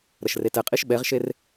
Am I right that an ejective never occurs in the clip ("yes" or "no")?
no